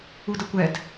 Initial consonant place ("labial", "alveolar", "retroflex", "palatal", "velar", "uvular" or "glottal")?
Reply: alveolar